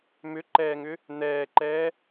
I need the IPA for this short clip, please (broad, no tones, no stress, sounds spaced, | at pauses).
m ʏ ǃ ɛː ŋ ʏ | n̪ ɛː ǃ ɛː